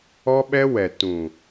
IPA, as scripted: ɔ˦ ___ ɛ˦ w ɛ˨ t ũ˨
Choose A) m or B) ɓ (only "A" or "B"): B